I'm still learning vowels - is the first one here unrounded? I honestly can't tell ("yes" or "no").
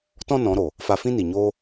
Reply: no